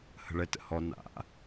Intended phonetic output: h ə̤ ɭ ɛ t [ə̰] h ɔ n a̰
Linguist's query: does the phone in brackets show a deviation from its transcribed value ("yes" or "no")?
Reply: no